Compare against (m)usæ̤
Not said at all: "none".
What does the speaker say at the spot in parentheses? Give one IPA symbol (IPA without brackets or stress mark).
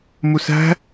m